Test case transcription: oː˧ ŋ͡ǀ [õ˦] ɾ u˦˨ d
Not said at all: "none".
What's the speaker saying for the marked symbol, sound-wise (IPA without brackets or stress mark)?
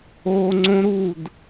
õ˦